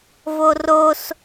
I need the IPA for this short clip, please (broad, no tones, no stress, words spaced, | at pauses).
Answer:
voros